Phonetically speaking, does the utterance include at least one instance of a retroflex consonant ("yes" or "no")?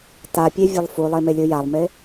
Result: no